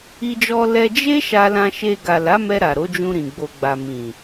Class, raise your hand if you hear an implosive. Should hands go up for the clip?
no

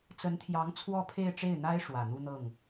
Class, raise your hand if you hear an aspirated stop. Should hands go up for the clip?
yes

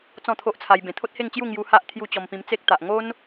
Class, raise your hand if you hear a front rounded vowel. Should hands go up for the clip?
no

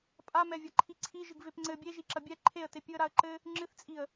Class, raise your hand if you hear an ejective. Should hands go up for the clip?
yes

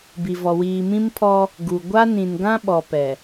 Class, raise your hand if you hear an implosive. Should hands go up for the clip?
yes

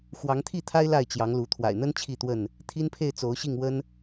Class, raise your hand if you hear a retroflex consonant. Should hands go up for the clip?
no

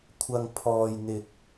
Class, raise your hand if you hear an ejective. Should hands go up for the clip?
no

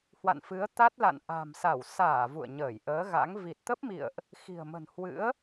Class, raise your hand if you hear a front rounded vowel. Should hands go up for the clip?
no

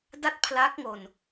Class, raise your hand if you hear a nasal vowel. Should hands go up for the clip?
no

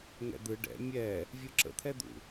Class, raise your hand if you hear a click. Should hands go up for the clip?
yes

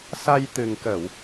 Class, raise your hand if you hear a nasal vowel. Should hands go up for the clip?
no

